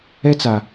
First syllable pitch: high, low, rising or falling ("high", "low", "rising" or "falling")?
high